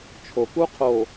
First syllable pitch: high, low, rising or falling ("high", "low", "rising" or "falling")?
low